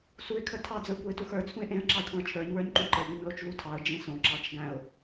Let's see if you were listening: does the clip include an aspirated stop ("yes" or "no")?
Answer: yes